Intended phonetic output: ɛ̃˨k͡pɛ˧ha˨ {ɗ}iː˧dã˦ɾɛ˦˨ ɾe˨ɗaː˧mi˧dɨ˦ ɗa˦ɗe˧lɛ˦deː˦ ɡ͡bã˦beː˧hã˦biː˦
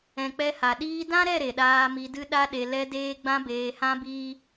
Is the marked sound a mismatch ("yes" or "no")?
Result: no